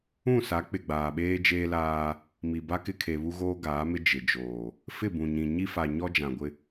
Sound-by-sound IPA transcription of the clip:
ũ˦˨ s a˨˦ k͡p ɪ˨ ɡ͡b aː˨ ɓ eː˦ d͡ʒ eː˦ l aː˦ | m i˨ b a˦ k ɪ˦ kʰ e˨ β u˦ ɣ oː˦ ɡ aː˨˦ m ɪ˦ d͡ʒ ɪ˨ d͡ʒ oː˨ | f ɪ˦˨ b ũ˨ ɲ ĩ˨ ɲ i˦ f a˨ ɲ ɔ˦ d͡ʒ ã˨ ɡʷ ɪ˦

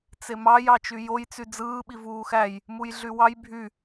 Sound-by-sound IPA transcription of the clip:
t͡s e m ɑ j ɑ t͡ʃ y j o j t͡s y d͡z ɯː ɓ i v uː x æ j | m u j ɮ y w ɑ j bʱ y

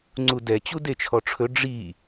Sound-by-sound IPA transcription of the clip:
ŋ͡ǀ u d ɛ t͡ɕ u d e t͡ʃʰ ɔ ʈ͡ʂʰ ɵ ɖ͡ʐ i

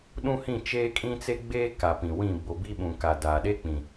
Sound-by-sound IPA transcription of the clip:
ɗ ũ˦ h ĩ˦˨ t͡ʃ eː˦ kʼ ĩ˦ t͡s e˦ ɡ͡b eː˦ k a˨ p ĩ˨ w ĩ˦˨ b o˨ b i˦ ɓ ũ˨ k a˨ d aː˨ ɗ eː˦ k͡p ĩ˨

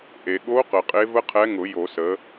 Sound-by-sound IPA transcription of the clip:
ʔ e˩ ɠ o˧˥ q ə˩ qʼ e˧˥ v ə˥ qʰ ɛ˧˥ ŋ ʊ˨˩˦ j o˨˩˦ s ə˩˥

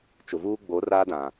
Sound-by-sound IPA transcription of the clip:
t͡ʃ ʊ˨ v uː˦ ɡ͡b o˨˦ r aː˦ d ã˨

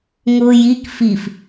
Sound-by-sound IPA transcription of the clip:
ŋ ʊː j i k f i f

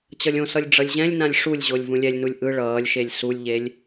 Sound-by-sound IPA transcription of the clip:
t͡ɕ ʌ lʲ õ s ʌ lʲ ɖ͡ʐ ʌ lʲ ʑ ɛ̃ lʲ n ã lʲ ʂ u lʲ ʑ o lʲ v ũ lʲ ɛ lʲ n u lʲ ʔ ɯ ɭ ʌː lʲ ʃ e lʲ s u lʲ ʎ e lʲ

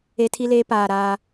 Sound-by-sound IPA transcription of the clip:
e˦ tʰ i˦ l eː˦ p aː˨ ɾ aː˦

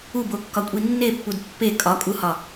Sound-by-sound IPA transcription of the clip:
u b o kː ɒ kʷʼ i nː e pː u d pː e kʼ ɒ kʼ u h ɒ

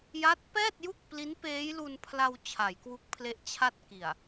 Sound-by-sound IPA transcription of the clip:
j a˦˥ t̚ p ɛː˥˩ t̚ j u˥˩ k̚ p l i˦˥ n p eː˦˥ j l u˧ n pʰ l a˧ w t͡ɕʰ a˩˦ j k w u˦˥ k̚ pʰ l e˦˥ ʔ t͡ɕʰ a˥˩ t̚ k i˨˩ a̯

